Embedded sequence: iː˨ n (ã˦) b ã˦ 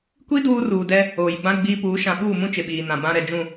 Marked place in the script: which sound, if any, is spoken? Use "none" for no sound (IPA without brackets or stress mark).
ã˨